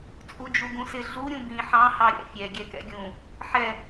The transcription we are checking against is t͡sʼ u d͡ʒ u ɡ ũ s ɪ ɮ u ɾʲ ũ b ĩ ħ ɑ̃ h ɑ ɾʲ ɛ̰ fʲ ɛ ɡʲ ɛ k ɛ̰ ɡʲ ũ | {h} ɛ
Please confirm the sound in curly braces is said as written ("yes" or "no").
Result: no